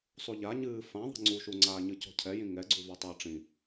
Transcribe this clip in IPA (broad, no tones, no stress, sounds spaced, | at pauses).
sˤ u ʎ a ɲ ɨː f ã ðˤ i̤ ŋ͡ǀ u ʃ u ŋ͡ǀ aː ɲ ɨ c ɔ̤ cʰ ɛ j ĩ ŋ ɛ ɡ͡ǀ u v ɔ tˤ ɘː ʈ͡ʂ ĩ